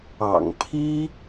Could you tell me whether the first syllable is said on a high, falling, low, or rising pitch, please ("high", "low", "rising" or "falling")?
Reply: low